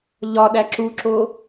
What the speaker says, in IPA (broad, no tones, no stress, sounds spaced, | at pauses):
ʎ ɒ ɗ æ ǁ u ǁ o